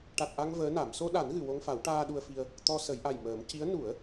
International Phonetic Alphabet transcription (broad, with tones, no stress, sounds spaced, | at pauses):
ʈ a˨˩ t̚ ʔ a˧ ŋ v əː˧˥ n a˨˩˦ m s o˧ ɗ a˨˩˦ n ɣ ɨ˨˩˨ w o˧ ŋ f a˨˩˦ w ʈ aː˧ ɗ u˧ ə̯ f i˧ ə̯ | t̪ ɔ˧ s ə˨˩˦ j ʔ a˨˩ j m əː˨˩˦ m c i˧˥ ə̯ n u˨˩˦ ə̯